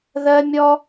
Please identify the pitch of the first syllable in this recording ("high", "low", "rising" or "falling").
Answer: high